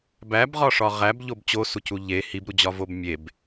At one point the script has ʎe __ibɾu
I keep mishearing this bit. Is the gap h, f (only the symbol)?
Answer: h